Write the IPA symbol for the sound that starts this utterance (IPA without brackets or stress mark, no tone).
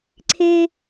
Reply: ǀʰ